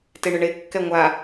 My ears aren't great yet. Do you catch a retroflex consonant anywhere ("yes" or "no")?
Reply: yes